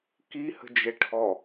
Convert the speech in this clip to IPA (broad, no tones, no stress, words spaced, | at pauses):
kihə̤d͡ʒɛ ʈʰɔ